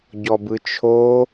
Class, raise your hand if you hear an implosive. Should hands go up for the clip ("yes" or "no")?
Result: no